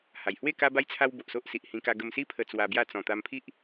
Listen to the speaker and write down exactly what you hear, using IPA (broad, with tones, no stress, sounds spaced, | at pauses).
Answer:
h a˨˩ j h w e˥˧ k a˦ b a˦ j t͡sʰ a˦ w b o˨ ʔ s o˦ ʔ s i˨ ʔ h ĩ˧ k a˧ ɡ ə˧ m s i˦ pʰ ə˧ t͡s w a˧ b j a˥˧ t͡s ɔ̃˨˩ t̪ a˧ m pʰ i˦ ʔ